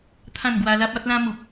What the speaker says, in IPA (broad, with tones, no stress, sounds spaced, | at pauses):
t̪ʰ ã˥˧ n ɡ w a˧ l a˦ p̚ a˦ t̚ l ã˦ m u˨ p̚